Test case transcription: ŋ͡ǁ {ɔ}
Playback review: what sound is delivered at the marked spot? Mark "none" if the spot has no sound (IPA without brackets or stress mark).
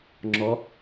ɔ